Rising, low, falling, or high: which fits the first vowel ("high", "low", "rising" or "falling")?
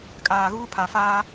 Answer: low